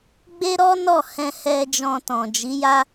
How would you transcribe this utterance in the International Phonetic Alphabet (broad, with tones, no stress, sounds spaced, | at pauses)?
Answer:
ɡ͡b e˦ ɾ ɔ˦ n ɔ˦˨ h ɛ̃˧ h ɛ˧ d͡ʒ ɔ̃˧ t ɔ̃˨ d͡ʒ i˨˦ j a˦